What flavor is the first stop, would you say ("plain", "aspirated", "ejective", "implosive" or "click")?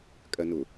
ejective